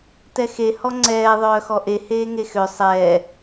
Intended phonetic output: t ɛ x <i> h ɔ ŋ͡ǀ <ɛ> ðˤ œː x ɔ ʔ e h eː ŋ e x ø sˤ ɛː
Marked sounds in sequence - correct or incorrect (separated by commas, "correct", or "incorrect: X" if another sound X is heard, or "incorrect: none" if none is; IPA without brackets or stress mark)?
incorrect: e, incorrect: ɛː